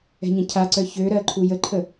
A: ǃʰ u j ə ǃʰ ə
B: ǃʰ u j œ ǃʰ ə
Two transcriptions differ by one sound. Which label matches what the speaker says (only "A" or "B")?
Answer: A